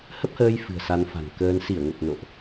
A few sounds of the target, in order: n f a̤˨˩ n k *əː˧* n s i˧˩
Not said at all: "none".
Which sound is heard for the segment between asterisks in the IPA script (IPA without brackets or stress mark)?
əː˧